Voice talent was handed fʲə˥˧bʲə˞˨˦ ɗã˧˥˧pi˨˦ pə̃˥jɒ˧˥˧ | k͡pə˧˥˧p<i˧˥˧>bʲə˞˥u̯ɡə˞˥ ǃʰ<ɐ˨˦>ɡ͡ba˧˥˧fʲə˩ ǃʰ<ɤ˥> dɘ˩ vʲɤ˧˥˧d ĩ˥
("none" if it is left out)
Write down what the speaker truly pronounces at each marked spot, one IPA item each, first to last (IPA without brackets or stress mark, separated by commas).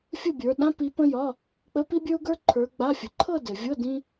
i˥, ə˞˨˦, ɤ˥˧